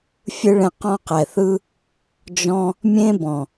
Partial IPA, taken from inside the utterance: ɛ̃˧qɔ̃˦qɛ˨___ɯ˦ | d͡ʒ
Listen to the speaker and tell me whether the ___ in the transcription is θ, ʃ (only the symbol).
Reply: θ